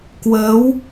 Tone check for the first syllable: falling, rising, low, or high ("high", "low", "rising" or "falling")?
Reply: rising